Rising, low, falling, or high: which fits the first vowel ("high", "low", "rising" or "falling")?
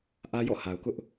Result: high